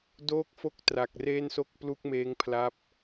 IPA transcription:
d oː˥˩ k̚ f o˥˩ k̚ t r a˨˩ k̚ r eː˥˩ n s o˥˩ k̚ p l u˥˩ k̚ m eː˦˥ ŋ pʰ l a˦˥ p̚

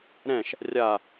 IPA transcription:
ɾ ɛ̃ ʃ | rʲ a

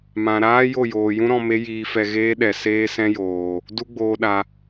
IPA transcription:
m ã˨ ɾ aː˦ j o˦˨ j oː˨ j ũ˦ ɾ ɔ̃˧ m e˦ j iː˧ f ɛ˧ ɣ eː˦ ɗ ɛ˨ s eː˦ s ɛ̃˦ j oː˨ | d u˧ ɡ͡b oː˨ ɗ a˨

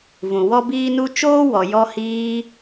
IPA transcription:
v ũ˨ w ɔ˦ b iː˦ n u˦ t͡ʃ oː˦ w ɔ˨ j ɔ˧ h iː˧

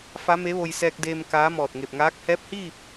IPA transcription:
f a˧˥ m e˧˥ ʋ o˧ j s ɛː˧ k̚ d eː˧ m k aː˧˥ m ɔː˧˩ t̚ ŋ e˧˩ p̚ ŋ aː˧˥ k̚ h ɛː˧˥ p̚ h iː˥˨ p̚

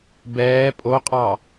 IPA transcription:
b ɛː pʼ o qʼ ɑ

